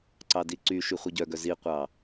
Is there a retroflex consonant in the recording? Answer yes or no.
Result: no